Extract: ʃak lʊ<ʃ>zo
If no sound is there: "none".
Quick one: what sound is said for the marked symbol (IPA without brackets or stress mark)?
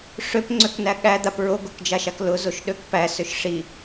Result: none